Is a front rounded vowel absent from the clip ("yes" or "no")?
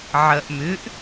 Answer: no